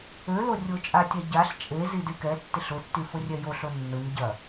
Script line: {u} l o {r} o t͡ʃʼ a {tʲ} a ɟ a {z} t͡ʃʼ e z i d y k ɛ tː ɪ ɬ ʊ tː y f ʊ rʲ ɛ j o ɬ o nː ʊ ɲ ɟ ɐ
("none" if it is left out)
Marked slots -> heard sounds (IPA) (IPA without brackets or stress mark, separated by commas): ø, rʲ, tʲ, ɬ